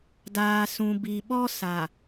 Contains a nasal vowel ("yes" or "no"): yes